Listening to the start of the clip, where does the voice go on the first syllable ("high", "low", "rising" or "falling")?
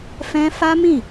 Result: high